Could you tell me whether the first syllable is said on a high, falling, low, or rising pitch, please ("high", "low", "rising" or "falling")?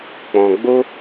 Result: low